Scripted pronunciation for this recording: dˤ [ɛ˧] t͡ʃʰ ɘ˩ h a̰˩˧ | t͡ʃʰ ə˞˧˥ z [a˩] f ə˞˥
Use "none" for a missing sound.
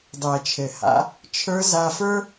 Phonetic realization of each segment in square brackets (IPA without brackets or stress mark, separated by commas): ɛ˩, a˧